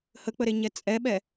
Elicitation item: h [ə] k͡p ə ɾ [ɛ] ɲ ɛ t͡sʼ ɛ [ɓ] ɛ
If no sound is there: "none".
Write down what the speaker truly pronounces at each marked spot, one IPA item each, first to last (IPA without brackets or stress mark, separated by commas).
ə, e, ɓ